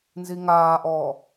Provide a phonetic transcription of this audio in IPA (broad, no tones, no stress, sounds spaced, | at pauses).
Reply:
n z i ŋ aː ʔ ɔː